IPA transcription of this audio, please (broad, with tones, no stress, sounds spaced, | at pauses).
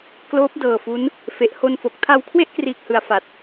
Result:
k l oː˦˥ p̚ d ɤː˨˩ f u˦˥ n | f e˨˩ ʔ h o˧ n f o˨˩ k̚ tʰ a˧ w kʰ w e˥˩ ʔ k r iː˨˩ k̚ h ɯ˨˩ a̯ f a˨˩ t̚